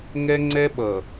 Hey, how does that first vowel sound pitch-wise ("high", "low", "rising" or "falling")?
high